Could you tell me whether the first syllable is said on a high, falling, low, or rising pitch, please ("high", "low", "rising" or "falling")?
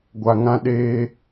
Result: low